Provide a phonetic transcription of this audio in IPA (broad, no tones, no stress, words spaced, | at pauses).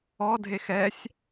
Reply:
ɔdʱex ɛsʲ